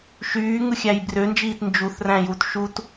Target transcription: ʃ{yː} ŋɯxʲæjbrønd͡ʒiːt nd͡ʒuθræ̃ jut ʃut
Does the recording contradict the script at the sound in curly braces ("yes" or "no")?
no